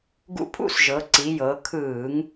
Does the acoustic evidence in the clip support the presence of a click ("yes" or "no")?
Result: yes